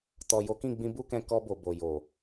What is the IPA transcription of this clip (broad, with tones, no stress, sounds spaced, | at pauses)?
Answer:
t ɔ˨ j o˨˦ k ĩ˦˨ ɡ͡b ĩ˧ b u˦ k ɛ̃˧ k ɔ˧ b o˨ b o˨ j o˨